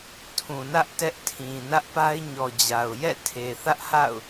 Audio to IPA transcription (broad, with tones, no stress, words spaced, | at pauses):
tʰũ˨nä˦ʔ tɛ˦ʔtʰĩ˨ nä˦ʔpa˦ɪ̯ɲɔ˨d͡ʑa˨ʊ̯ jɛ̰˦˨ tʰe˨θä˦ʔha̰˦˨ʊ̯